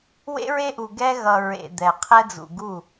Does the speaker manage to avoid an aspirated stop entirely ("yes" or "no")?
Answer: no